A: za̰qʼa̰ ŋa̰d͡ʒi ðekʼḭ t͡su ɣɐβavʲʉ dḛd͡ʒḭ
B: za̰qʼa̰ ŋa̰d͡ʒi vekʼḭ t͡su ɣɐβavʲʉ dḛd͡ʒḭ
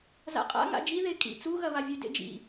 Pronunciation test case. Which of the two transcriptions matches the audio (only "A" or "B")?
A